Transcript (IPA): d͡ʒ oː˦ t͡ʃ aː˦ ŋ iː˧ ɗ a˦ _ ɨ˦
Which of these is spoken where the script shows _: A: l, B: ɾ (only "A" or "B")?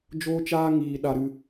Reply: B